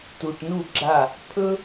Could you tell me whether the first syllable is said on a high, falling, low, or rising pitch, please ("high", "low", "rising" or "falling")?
low